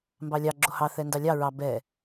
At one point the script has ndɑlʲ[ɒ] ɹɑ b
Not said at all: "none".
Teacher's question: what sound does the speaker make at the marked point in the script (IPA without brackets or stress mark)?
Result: ɑ